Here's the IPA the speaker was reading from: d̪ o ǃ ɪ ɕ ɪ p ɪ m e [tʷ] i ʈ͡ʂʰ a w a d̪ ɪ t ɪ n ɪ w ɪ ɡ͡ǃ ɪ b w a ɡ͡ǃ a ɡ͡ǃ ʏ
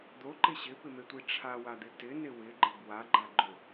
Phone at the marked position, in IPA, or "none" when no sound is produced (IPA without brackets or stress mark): tʷ